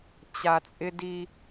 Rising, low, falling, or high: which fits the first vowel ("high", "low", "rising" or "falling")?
low